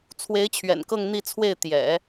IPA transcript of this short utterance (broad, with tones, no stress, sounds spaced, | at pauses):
t͡sʰ w e˧˥ ɪ̯ t͡ɕʰ ɥ ɛ̰˨˩ n k ɤ˥˧ ŋ n̪ i˥˧ t͡sʰ w e˥˩ ɪ̯ t̪ j ɛ̰˨˩˦